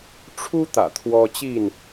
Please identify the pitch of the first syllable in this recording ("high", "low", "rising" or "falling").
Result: high